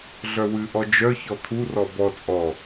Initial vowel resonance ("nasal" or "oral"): oral